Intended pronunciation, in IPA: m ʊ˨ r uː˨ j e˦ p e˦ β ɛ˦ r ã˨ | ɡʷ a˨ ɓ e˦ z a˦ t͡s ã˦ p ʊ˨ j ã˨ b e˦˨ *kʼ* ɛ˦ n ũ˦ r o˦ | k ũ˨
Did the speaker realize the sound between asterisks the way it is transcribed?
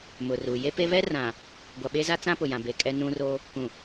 yes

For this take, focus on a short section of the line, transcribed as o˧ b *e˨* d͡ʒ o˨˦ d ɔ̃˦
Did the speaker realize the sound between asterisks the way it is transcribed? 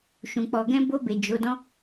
yes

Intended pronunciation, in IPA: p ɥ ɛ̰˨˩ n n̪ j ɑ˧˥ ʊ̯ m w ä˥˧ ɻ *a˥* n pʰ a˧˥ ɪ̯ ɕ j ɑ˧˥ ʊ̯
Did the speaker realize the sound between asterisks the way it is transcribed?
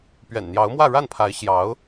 no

